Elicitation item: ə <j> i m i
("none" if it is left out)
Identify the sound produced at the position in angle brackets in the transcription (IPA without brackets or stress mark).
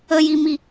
j